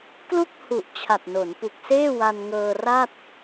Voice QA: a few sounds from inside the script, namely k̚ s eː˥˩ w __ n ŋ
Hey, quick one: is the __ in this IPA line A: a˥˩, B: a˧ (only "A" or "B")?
B